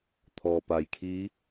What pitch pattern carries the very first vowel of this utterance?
low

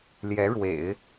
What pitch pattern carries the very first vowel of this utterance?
rising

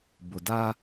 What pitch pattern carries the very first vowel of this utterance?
low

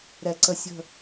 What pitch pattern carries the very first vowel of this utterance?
low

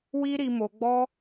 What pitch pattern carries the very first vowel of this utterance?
high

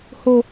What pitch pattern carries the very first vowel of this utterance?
high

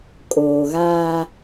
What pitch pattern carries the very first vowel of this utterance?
low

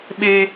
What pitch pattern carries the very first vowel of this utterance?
high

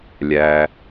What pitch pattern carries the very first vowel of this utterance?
low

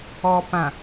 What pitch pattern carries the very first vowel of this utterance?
low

